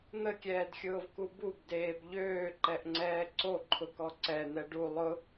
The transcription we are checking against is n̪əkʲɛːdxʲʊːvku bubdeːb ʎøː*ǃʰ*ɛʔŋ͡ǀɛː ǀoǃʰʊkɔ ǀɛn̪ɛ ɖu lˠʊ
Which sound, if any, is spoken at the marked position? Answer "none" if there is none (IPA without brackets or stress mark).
ǃ